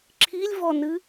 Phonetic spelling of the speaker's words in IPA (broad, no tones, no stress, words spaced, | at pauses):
ǁʰilʲvɔnɨ